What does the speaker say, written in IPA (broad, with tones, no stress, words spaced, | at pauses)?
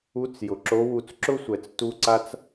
u˧˥t͡s jʊ˩ǁo˧˥wu˧t͡s ǁʊ˥sʷɛ˩t͡s tu˧ ǀa˧t͡s